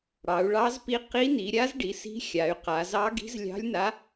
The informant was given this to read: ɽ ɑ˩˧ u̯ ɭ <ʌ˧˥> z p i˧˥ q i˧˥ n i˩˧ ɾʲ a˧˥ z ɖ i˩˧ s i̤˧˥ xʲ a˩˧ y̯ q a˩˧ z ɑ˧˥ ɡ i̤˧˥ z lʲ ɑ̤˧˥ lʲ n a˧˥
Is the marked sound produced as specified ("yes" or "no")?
no